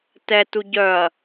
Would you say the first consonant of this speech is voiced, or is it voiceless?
voiceless